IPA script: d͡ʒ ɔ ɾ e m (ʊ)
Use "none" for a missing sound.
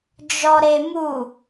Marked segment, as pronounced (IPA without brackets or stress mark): u